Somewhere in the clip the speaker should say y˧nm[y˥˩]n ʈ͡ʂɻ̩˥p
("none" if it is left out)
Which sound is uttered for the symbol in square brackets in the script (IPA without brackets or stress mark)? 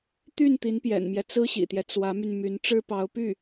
y˧˥